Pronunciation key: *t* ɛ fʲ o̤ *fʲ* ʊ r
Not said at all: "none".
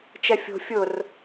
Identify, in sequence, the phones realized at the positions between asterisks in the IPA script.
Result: t͡ʃ, fʲ

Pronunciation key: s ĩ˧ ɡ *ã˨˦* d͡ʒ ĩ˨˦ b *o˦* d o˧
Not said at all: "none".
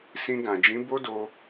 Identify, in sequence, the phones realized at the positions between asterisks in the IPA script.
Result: ã˨, o˦

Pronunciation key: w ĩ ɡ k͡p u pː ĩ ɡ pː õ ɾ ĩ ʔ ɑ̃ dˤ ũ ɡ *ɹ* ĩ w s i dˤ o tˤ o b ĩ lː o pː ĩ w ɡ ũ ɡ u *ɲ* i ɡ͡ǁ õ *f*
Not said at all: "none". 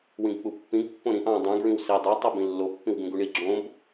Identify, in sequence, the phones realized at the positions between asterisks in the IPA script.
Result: ɹ, ɳ, b

